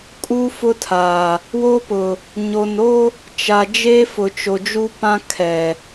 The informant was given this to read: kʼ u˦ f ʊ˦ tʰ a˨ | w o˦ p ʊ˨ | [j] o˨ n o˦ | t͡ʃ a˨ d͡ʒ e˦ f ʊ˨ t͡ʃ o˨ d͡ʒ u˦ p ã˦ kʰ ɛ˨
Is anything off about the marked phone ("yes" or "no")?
yes